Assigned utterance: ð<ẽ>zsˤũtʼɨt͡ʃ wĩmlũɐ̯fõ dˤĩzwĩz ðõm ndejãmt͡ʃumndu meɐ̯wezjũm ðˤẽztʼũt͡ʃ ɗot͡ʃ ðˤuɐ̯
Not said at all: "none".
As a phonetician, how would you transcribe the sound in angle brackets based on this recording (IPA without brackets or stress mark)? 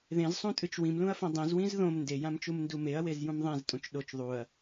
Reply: ẽ